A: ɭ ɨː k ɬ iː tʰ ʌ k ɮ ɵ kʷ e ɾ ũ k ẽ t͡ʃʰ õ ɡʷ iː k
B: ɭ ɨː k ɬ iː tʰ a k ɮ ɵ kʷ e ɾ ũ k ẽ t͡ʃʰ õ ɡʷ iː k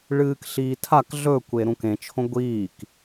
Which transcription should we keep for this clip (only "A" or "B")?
B